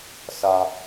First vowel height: low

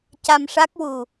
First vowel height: low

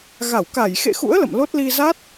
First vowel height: low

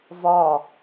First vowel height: low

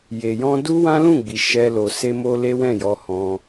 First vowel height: mid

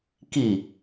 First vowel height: high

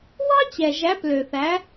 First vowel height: low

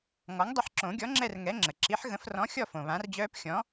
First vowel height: mid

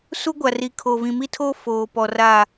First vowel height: high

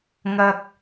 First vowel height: low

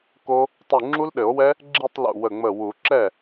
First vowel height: mid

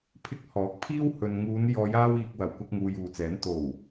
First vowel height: high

